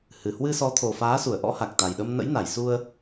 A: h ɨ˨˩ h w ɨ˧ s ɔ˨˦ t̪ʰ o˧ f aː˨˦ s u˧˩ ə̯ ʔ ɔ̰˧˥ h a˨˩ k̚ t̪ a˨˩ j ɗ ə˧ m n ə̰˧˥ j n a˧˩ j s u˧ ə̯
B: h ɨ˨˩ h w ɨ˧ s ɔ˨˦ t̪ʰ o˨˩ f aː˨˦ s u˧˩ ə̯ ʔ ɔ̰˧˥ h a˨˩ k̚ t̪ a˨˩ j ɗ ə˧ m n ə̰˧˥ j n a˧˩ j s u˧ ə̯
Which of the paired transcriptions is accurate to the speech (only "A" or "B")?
B